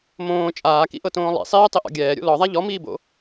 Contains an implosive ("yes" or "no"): no